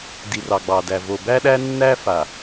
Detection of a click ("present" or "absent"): absent